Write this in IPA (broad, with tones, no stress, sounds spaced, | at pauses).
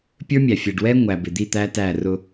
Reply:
pʲ ə˞˦ mʲ æ˨ fʲ ɛ˨ ɖ w ɛ˦ ŋʷ æ˨ b ɪ˨ d̪ i˦˨ t̪ æ˦ t æ˦˨ r ʊ˦